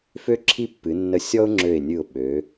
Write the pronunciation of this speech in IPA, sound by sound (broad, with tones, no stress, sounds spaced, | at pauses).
f ø˥˧ ǁʰ i˥˧ pː ɨ˩˧ nː ə˧˩ sʲ ɔ˥ ʊ̯ ŋ͡ǁ ø˧˩ ɪ̯ nʲ ɨ˧˩ ʊ̯ ɓ ø˩˧